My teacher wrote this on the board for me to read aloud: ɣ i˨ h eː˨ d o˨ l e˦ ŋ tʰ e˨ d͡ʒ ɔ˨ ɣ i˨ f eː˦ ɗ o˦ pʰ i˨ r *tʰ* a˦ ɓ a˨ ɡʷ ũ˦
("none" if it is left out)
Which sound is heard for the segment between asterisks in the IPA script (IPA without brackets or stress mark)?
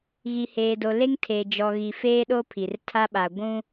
tʰ